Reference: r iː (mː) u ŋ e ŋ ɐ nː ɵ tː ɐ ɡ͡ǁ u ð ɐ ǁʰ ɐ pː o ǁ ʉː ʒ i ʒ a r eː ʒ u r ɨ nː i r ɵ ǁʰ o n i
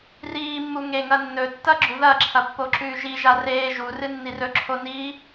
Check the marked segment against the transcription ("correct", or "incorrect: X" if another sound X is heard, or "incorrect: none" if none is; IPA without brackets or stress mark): correct